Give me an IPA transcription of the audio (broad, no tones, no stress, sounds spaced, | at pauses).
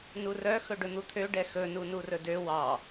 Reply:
n u r œ x ɵ ɖ ɵ n̪ u t̪ʰ ø ɖ ɛ x ɵ n u n u r ɵ d ø w ɑ